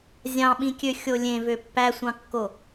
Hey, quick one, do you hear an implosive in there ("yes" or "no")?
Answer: yes